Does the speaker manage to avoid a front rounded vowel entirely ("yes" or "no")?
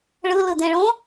yes